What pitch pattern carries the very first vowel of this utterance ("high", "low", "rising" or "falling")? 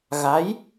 rising